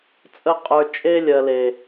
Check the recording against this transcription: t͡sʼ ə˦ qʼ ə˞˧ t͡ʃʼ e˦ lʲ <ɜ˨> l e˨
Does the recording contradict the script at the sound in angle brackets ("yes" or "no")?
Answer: no